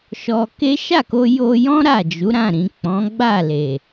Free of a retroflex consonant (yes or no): yes